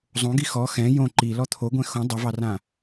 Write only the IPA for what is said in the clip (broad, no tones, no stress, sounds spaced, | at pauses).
zˤ õ ɡ i x ɔ x ɛ̃ j õ ǃ i l ɔ t̪ʰ o ɡʷ ɛ̃ x õ dˤ ɛ v ɑ r ã